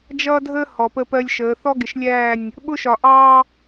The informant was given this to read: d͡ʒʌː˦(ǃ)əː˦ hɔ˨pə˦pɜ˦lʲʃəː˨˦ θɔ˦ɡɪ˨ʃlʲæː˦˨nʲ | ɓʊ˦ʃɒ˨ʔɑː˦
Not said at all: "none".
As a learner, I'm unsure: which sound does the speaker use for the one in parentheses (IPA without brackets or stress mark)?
dʱ